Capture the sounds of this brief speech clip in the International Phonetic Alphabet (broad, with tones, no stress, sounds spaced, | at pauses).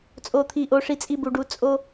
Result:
t͡sʼ o˨ t̪ʰ i˨ ʔ o˧ ʂ i˧ t͡sʼ i˦ b u˧ ɖ u˧ t͡sʼ o˦